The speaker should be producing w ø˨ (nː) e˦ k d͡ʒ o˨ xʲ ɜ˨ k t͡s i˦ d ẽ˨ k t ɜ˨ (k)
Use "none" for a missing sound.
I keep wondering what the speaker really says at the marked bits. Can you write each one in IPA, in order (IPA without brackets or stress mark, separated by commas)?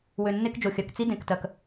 nː, k